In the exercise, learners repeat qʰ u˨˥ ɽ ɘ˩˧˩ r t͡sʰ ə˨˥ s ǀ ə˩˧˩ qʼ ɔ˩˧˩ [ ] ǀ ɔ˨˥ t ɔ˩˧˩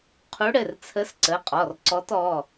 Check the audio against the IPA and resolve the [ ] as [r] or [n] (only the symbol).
r